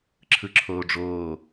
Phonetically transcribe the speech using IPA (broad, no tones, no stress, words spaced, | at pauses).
ǁʰɯǁʰoːɖ͡ʐoː